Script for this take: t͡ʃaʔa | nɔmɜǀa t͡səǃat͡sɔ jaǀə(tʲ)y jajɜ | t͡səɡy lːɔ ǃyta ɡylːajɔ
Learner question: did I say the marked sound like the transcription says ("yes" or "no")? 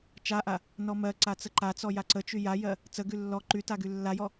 no